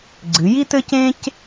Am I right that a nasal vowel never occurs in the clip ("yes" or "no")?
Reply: no